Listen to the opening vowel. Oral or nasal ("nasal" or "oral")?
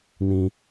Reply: nasal